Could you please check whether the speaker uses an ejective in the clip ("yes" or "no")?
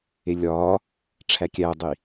no